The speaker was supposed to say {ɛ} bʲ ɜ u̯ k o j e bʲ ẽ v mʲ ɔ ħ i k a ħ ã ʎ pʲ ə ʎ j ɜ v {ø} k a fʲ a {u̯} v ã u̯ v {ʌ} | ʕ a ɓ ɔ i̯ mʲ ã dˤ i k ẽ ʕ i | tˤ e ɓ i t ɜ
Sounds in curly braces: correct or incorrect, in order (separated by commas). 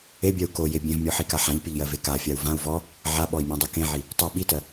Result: incorrect, incorrect, correct, incorrect